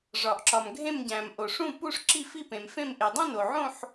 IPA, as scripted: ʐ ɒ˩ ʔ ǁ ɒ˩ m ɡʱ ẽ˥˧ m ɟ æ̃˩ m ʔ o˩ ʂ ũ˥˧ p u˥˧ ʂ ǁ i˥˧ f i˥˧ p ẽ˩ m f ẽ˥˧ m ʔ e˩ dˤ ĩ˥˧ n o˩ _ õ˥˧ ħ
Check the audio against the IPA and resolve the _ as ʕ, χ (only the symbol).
ʕ